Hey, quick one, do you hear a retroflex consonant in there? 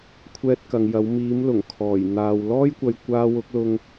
no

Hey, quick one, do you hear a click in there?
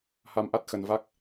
no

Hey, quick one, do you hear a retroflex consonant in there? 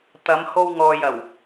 no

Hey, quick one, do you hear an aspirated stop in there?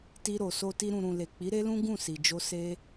no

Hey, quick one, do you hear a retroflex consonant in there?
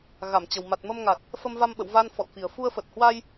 no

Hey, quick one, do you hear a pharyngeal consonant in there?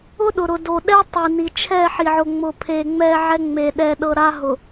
yes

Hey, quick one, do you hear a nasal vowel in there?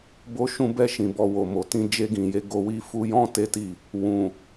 yes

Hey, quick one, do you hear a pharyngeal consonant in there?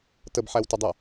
yes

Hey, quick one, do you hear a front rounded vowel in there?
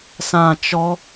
no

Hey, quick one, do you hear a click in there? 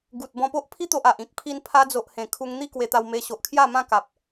no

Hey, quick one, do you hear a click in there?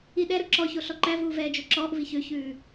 yes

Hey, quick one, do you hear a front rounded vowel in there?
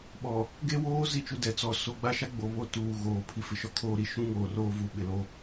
no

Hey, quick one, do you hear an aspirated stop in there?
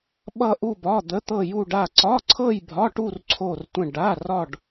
yes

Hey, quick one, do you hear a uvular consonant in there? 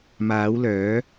no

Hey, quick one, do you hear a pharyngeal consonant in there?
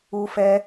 no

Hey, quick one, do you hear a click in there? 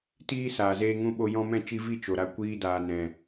no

